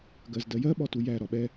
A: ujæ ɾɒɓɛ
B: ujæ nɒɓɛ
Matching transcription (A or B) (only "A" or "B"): A